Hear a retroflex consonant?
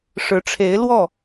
yes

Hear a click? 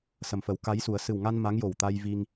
no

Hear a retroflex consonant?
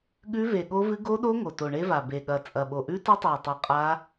yes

